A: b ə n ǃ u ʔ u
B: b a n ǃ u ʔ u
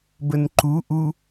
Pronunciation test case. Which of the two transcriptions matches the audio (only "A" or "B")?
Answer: A